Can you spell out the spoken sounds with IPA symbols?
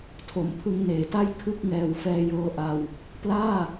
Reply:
tʰo˩˦mpʰɯ˧ŋneː˩˦ta˥˩j kʰɯ˥˩k̚ ŋɛː˨˩wfɛː˧jɤː˧ʔa˧w | plaː˥˩

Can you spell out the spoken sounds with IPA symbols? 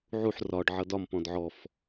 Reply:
ʕuħ rɒɖ ʕʌdɒm pɔ̃dʕɔf

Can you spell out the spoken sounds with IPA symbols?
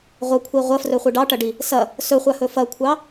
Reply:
ʁʷɐkʷʰi ʁʷɐfrɵχʷi ɖɑʈɐɖi | sɐ | sɵχʷahɵ fɐkʷʰɑ

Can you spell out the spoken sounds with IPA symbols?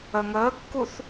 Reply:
ə ŋəːkːuθ

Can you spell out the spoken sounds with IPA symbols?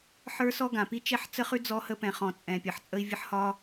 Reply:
ħə˞˦sɔ˦ɡã˨ pi˦t͡ʃɛ˦ħ t͡sə˦χʉ˦ d͡zɔ˦hə˦ pɛ̃˨χɔ̃˨ t͡sʼɛ̃˨pʲə˨ħ t͡sʼə˦i̯vʲə˦ħ hɒ˦

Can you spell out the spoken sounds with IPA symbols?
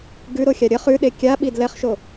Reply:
ɡʉɾoxʲa ɾʲə χʉɗe kʲaɓi dlɛχʃo

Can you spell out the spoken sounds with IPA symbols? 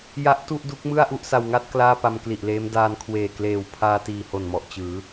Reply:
ja˦˥ʔtu˥˩ʔdu˦˥k̚mɯ˥˩a̯ ʔu˥˩ʔsa˧wŋa˥˩t̚ klaː˥˩pa˧mkli˨˩ʔleː˦˥m daː˧n kʰweː˨˩kleː˨˩w pʰaː˧ tiː˨˩ho˨˩nmɔ˨˩ʔ t͡ɕɯː˩˦

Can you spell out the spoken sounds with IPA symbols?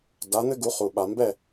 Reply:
da˩˥n̪ɘ˥ɡu˩˥ χu˩ɓa˩mbɛ˥˩

